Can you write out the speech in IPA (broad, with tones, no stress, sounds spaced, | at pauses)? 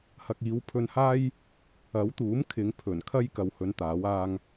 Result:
h ɐ˨ k̚ iː˨˧ w pʰ ɵ˧ n h aː˥ j | ɐ˨˥ w t̪ uː˨˥ m kʰ ɪ˨˧ ŋ pʰ ɵ˨˩ n kʰ ɐ˥ j k ɐ˨ w h ɵ˨˧ n t̪ aː˨˥ w aː˧ ŋ